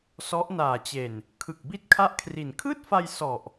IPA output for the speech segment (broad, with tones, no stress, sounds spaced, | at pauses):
s ɔ˦˥ ʔ n aː˨˩ t͡ɕ e˨˩ n | kʰ ɯ˨˩ k̚ b i˥˩ t̚ kʰ a˥˩ ʔ kʰ r i˨˩ n kʰ ɯː˥˩ t̚ f a˧ j s ɔ˨˩ ʔ